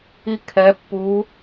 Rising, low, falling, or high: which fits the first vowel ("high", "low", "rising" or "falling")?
rising